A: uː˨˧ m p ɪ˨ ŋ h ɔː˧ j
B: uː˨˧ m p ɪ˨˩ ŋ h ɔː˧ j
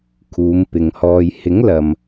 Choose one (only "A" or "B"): A